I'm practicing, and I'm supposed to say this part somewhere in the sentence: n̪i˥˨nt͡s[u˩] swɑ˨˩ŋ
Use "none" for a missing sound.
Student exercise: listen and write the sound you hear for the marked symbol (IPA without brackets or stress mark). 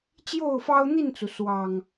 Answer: u˩